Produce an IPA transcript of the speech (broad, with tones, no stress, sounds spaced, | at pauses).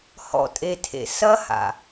h ɔ̰˧ tʼ e˨ tʰ ḛ˨ s ɐ˦ h a̰˨